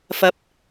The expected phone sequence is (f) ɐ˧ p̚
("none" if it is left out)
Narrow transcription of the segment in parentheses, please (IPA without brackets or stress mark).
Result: f